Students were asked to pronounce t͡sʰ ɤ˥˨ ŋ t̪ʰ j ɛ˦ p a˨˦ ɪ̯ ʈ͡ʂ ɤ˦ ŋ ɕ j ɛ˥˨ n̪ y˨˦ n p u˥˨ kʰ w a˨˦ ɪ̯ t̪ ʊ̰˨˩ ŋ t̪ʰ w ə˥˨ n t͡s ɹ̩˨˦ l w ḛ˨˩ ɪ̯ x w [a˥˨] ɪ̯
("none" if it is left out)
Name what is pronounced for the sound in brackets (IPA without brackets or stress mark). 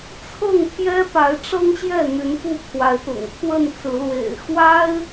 a˦